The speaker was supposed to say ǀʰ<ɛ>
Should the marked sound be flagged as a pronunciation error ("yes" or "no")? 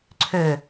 yes